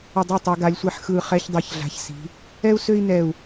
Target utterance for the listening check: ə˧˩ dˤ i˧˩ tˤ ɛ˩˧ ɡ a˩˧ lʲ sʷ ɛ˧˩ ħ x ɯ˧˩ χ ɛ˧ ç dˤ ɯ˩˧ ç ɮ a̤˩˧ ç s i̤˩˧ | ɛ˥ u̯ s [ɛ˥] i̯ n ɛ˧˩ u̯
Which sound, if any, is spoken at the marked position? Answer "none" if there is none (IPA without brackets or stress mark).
ø˥